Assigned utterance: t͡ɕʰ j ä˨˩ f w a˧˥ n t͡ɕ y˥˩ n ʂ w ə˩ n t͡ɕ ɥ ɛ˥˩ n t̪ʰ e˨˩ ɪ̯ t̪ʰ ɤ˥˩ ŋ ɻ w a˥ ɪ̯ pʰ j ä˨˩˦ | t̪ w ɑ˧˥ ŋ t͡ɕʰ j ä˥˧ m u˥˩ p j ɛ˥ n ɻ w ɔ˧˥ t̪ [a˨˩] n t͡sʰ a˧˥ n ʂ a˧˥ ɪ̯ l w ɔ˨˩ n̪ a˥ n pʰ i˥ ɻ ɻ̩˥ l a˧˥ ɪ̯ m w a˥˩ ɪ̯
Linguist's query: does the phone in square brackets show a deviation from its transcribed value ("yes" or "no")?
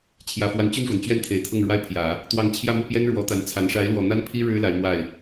yes